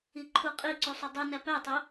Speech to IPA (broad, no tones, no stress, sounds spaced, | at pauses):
i ǃʰ u qʼ i ǀ u sˤ u dˤ u n æ p æ tˤ o